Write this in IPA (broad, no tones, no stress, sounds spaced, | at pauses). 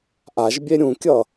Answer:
ʔ a ʒ bʲ e ɾʲ ũ kʲ ʌ